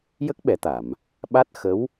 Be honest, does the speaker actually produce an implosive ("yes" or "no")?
yes